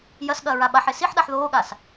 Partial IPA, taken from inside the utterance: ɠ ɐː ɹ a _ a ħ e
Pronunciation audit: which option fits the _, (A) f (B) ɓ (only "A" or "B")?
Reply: B